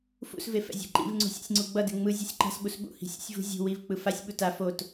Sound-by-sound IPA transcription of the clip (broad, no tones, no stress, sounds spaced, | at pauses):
f ṵ s v e f ɛ̰ zʲ a̤ ǃ ḭ v ŋ͡ǀ ṳ sʲ ɛ̰ sʲ ŋ͡ǀ u ɡ͡b ʌ d e ŋ͡m ɯ zʲ ɛ sʲ ǃ a̤ s ɓ u s ɓ ṵ h i̤ sʲ ṵ sʲ v ṳ zʲ ṳ w i v k͡p ɯ f a sʲ ɓ u t a f o t